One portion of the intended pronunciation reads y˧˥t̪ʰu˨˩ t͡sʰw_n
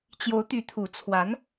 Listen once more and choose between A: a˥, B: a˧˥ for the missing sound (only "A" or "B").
B